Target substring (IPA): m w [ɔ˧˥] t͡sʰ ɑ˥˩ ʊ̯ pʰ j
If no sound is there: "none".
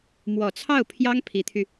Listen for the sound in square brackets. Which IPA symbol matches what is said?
ɔ˨˩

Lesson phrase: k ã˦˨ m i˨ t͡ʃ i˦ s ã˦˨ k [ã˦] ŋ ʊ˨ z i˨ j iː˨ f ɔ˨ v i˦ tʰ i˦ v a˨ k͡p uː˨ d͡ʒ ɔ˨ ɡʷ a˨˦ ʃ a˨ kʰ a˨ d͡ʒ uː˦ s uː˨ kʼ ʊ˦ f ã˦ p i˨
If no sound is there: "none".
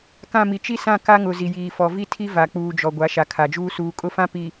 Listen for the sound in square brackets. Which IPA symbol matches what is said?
a˦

